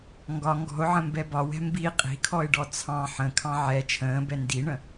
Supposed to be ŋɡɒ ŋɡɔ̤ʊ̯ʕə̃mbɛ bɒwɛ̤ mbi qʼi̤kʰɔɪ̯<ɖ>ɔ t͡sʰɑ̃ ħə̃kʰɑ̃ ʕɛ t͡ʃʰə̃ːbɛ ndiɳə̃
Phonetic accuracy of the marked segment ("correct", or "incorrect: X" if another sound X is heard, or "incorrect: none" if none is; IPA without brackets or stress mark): correct